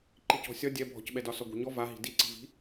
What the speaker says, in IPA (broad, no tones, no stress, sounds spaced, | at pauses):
ǃ i c ɔ̤ sʲ ɒ dʲ ɛ bʱ ɔ̤ c ɓ ɛ d ɒ s ɔ ɡʷ ɛ̤ ɲ ɔ v a ɦ i̤ d i ǀ i̤ v i̤